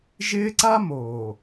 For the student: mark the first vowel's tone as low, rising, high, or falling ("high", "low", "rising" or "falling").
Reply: high